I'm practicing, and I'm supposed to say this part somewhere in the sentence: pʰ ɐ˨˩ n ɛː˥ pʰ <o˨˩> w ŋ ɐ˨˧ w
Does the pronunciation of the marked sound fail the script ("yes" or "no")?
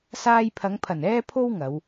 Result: yes